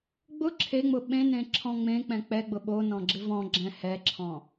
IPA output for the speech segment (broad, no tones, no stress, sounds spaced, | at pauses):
ɡ͡b ʊ ǁʰ e ŋ͡m ʊ ɓ ẽ n ẽ ǁʰ ɔ̃ ŋ͡m ẽ k͡p ɛ̃ k͡p ɛ ɡ͡b ʊ ɓ o n ɔ̃ ɡ͡ǁ ɪ v ɔ̃ ɡ͡ǁ ɛ̃ h ɛ ǁʰ ɔ̃